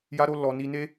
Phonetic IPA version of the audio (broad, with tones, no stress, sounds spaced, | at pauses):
j a˦ ɾ o˦ l ɔ˧ n i˧ n e˦